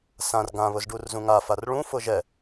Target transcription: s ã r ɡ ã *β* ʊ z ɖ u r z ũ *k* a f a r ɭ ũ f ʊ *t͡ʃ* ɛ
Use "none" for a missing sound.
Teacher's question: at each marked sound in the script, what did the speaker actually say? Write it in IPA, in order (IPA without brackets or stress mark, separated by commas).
β, ŋ, ʒ